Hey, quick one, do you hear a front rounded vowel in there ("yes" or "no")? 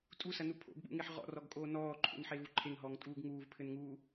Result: no